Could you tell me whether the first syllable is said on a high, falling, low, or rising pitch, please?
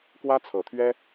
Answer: high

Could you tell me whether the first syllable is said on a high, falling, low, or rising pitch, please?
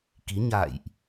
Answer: rising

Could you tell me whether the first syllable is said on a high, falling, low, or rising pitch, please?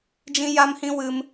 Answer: high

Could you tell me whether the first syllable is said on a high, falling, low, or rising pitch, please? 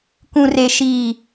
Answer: low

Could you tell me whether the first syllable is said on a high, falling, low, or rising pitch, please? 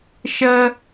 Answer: high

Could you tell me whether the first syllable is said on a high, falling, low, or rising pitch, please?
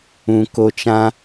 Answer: low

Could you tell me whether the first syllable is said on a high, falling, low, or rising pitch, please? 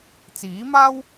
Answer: rising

